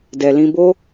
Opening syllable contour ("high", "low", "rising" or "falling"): low